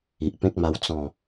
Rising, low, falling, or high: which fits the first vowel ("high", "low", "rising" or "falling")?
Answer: low